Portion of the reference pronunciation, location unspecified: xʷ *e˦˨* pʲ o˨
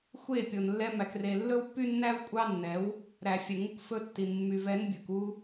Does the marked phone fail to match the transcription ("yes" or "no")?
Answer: no